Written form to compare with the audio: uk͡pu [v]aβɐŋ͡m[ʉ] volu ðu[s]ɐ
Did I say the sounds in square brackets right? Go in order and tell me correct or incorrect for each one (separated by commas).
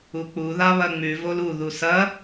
incorrect, correct, correct